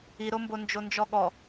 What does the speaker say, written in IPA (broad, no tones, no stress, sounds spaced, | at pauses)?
i ɾ o m b o n d͡ʒ o n d͡ʒ ɔ ɠ ɔ